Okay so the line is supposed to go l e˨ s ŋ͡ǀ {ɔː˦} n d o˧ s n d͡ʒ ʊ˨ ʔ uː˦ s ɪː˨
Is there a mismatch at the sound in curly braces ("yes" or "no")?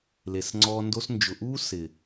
yes